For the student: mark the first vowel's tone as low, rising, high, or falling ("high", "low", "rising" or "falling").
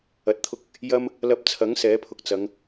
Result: low